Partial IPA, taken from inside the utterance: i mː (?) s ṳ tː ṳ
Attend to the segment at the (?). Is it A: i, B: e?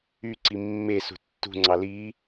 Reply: B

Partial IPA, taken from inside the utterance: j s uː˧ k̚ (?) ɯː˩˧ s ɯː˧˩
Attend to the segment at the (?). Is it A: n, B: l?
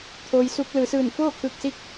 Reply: B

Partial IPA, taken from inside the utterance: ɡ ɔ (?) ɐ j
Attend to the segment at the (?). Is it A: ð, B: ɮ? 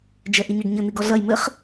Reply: B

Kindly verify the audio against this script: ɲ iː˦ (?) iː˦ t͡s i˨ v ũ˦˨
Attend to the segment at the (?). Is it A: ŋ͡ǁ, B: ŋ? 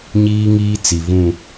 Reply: B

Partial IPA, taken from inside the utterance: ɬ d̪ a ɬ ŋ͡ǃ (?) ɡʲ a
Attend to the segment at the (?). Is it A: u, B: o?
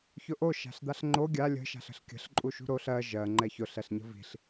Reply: B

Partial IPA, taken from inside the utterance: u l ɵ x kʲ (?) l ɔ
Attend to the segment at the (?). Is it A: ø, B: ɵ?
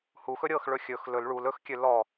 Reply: A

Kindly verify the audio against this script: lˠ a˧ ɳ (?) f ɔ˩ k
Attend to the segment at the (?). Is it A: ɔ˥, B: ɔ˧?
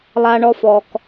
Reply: B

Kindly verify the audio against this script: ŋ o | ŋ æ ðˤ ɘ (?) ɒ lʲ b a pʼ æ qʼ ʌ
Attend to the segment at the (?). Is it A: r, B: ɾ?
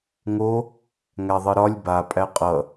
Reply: B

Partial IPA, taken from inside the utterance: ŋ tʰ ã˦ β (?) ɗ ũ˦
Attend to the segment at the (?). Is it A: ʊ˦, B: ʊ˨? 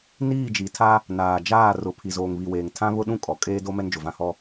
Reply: A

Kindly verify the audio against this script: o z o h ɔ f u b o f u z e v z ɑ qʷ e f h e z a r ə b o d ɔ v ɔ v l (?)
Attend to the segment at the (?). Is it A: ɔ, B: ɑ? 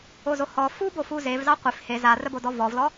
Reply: A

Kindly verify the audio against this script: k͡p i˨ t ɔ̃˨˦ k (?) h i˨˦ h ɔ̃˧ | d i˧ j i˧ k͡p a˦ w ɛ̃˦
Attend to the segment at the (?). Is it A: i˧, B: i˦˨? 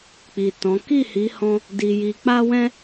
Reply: B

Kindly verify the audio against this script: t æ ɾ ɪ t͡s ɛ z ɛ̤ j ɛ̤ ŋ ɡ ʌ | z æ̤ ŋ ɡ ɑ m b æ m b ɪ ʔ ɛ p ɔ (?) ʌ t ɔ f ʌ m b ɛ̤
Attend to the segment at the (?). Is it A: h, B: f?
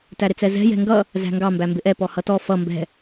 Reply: A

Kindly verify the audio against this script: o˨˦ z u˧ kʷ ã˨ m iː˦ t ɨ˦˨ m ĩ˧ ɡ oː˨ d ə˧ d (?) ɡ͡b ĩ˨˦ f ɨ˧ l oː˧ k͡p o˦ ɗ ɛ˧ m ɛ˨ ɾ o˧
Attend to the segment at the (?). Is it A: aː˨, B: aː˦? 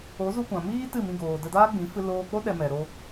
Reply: B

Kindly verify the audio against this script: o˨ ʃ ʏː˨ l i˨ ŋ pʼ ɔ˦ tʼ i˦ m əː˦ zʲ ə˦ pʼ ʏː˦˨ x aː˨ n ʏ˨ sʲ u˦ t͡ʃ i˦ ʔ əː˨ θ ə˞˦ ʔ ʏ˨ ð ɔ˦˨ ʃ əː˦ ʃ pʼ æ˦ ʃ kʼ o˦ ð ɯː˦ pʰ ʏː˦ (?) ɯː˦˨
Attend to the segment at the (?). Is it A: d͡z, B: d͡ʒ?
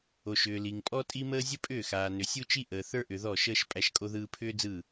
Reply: A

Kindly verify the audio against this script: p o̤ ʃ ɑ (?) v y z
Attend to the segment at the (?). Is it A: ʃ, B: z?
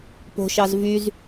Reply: B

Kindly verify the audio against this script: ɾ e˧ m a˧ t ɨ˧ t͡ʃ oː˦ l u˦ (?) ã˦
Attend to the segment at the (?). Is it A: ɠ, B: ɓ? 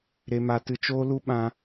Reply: B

